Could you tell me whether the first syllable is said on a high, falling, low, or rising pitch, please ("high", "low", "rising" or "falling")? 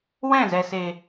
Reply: falling